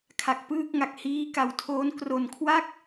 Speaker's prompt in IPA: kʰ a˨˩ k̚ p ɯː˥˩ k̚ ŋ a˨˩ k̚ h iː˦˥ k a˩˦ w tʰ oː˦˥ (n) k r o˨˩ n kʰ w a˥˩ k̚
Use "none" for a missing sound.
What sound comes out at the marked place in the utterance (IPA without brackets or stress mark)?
n